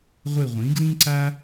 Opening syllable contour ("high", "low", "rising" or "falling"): falling